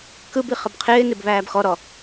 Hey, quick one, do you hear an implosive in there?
no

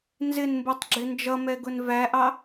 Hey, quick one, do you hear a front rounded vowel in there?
no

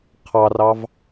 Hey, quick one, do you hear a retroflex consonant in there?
no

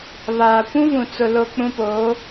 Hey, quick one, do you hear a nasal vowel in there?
yes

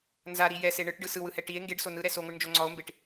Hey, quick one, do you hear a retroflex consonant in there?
yes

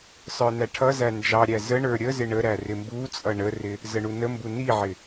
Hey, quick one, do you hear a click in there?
no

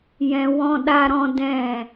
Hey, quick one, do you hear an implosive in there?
yes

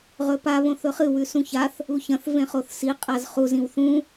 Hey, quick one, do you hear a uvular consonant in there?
yes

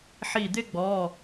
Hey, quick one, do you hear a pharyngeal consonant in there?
yes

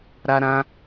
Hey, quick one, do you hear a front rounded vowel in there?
no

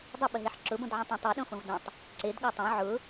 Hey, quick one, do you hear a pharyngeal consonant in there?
yes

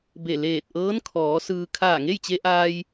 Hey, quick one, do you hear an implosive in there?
no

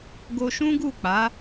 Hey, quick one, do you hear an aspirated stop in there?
no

